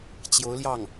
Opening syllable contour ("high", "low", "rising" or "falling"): rising